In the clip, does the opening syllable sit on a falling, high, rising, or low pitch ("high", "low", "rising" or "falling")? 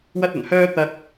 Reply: high